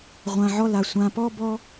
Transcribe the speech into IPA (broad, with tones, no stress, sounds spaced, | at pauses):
ʁʷ ã˨ ʕ ɔ˧ l a˨ sʷ ã˨ p ɔ˦ b ɔ˦